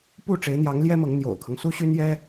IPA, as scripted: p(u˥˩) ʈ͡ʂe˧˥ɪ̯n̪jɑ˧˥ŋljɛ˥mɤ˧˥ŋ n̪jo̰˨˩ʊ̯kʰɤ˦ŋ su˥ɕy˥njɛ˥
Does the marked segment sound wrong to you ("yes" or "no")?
no